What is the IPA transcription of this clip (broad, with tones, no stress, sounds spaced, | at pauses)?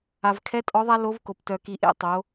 a˩ v kʰ ɛ˧˥ tʼ ɔ˧˥ ðˤ a˥ l o˧˥ v k o˩ p t œ˩ k i˩˧ ʔ ḛ˧ tˤ o˩˧